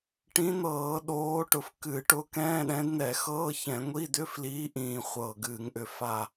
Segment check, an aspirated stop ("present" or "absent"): absent